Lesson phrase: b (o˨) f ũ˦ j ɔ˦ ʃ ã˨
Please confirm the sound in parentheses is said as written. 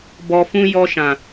no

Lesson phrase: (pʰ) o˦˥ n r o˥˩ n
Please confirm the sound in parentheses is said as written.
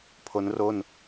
yes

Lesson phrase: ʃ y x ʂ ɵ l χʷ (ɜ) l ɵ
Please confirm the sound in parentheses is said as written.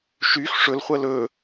yes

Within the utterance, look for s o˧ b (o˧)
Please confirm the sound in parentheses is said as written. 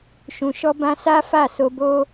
no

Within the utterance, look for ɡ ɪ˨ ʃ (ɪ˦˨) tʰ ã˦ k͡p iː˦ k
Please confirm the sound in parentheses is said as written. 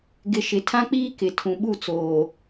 no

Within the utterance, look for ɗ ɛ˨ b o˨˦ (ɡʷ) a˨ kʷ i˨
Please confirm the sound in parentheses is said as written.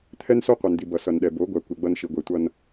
yes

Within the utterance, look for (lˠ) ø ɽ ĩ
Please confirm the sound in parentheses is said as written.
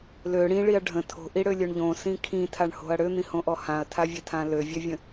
no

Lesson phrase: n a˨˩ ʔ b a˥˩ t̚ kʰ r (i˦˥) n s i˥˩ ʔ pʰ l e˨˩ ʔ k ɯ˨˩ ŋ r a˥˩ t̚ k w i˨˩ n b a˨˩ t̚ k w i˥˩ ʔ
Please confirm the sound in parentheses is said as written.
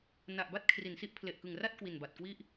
no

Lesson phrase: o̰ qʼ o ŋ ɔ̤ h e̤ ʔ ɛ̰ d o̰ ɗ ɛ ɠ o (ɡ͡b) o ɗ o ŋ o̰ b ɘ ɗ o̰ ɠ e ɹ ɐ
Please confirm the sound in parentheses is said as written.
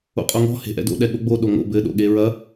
yes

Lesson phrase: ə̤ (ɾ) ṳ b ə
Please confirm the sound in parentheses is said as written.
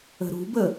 yes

